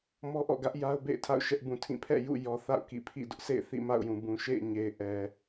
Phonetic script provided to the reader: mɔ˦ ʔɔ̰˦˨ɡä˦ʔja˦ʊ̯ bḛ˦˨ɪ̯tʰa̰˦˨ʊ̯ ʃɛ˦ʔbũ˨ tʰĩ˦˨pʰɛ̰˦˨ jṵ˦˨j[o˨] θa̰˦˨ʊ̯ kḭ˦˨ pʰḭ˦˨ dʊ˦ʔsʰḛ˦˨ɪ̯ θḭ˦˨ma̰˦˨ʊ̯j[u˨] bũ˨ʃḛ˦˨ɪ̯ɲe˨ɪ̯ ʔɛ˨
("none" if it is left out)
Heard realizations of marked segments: ɔ˨, ũ˨

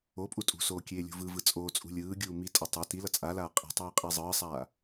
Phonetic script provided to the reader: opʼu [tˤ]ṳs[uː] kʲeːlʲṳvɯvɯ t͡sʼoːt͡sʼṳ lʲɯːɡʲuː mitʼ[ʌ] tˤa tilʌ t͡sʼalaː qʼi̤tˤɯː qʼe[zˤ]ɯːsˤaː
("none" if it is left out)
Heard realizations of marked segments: tʼ, oː, ʌ, zˤ

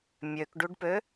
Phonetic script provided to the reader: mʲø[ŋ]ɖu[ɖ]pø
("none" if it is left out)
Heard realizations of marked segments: k, ɖ

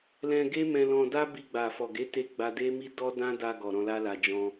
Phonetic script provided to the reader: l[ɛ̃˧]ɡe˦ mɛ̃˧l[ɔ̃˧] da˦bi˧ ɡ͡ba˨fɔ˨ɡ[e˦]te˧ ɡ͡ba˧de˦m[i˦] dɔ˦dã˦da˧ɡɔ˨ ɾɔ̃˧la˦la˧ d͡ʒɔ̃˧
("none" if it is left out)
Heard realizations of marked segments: ɛ̃˧, ɔ̃˧, e˨˦, i˦

